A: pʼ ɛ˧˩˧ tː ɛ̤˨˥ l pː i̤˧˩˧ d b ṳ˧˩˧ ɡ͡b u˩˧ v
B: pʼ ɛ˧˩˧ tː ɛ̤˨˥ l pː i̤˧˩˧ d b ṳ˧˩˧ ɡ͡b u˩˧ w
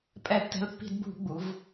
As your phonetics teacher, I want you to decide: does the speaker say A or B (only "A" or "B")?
A